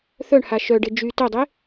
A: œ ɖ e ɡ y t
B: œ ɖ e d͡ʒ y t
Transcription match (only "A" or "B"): B